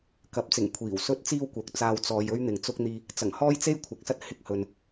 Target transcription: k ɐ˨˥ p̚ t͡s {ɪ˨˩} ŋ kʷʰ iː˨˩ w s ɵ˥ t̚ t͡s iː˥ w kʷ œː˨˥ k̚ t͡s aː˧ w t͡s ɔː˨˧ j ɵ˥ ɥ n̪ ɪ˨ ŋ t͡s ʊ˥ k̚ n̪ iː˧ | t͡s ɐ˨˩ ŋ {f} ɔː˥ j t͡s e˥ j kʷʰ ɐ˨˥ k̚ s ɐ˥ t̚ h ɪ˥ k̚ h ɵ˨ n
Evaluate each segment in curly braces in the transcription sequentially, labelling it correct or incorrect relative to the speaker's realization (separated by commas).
correct, incorrect